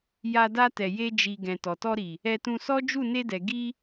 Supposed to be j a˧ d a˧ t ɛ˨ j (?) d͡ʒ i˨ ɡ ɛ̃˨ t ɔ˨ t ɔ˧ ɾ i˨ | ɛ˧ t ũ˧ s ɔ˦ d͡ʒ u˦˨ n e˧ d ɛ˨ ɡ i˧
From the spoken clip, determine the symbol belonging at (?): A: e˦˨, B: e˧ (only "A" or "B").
B